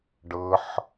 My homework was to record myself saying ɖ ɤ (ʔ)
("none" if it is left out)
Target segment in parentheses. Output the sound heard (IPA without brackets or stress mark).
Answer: ħ